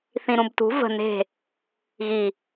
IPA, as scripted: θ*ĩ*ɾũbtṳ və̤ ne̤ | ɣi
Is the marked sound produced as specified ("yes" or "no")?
yes